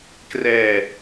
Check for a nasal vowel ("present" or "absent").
absent